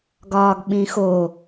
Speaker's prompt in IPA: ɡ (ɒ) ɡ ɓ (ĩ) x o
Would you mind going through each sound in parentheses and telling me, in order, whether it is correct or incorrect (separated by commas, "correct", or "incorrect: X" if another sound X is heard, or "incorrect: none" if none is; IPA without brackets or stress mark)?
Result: incorrect: ɒː, correct